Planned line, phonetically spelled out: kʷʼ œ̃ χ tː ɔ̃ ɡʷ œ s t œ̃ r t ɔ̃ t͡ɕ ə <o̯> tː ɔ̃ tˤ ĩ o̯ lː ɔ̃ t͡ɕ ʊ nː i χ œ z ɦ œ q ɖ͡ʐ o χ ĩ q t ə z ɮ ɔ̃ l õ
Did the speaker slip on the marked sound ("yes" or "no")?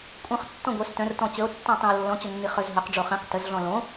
no